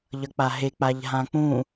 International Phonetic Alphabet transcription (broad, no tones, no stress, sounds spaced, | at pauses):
ʎ ʌ k͡p a ɦ e k͡p a ʎ ɦ ã k͡p ũ